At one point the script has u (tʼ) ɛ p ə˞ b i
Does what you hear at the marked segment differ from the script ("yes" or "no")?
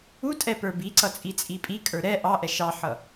no